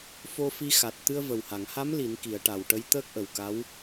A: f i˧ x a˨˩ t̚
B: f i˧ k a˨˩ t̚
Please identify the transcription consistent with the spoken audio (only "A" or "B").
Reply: A